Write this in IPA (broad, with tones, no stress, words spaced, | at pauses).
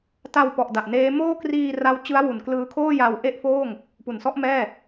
ta˧wpɔ˨˩ʔ da˨˩ʔneː˦˥ moː˥˩kriː˧ra˦˥w t͡ɕɯ˦˥a̯wu˩˦nklɯː˧kʰoː˥˩ ja˧w ʔe˥˩ʔfoː˥˩ŋ | pu˩˦nsɔ˦˥ʔmɛː˥˩